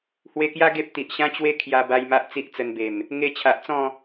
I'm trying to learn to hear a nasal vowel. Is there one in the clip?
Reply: yes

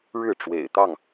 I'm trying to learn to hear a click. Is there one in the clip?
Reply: no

